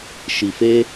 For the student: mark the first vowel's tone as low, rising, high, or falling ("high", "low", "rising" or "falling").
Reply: low